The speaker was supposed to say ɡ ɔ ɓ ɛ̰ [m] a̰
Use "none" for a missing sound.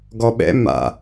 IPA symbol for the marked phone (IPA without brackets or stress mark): m